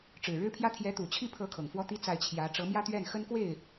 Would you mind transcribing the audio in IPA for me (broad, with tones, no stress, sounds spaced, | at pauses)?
ʈ͡ʂ ɻ̩˨˩ ɻ ɻ̩˥ pʰ j ä˥ t̪ʰ j ɛ˧˥ t̪ u˨˩ t͡ɕʰ i˥˩ pʰ ɤ˧˥ kʰ ɤ˨˩ ŋ f w ɔ˥ t̪ i˥ t͡s a˥˩ ɪ̯ t͡ɕʰ j ä˧˥ ʈ͡ʂ ɤ˧˥ m j ä˥ t̪ ɥ ɛ˥˩ n x ə˥ n k w e˥˩ ɪ̯